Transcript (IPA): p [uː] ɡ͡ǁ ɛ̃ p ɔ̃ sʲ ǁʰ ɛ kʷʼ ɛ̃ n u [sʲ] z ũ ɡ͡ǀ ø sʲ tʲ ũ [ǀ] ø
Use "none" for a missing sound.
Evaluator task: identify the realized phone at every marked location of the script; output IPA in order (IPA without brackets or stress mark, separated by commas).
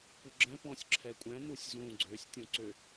u, sʲ, ǀ